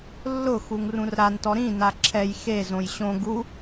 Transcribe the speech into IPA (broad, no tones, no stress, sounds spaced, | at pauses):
lː ʊ x u ŋ r ũ r ɾ a n t ɔ ɾ ĩ n a ǁʰ ɛ j x e z õ j ɕ õ ɡ u